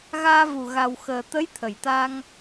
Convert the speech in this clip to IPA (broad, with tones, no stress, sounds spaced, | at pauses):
ɣ aː˧ v u˨˩ ɣ a˨˩ w x əː˨˩ t̪ ə˧˥ j t̪ʰ ə˨˩ j t̪ a˧ ŋ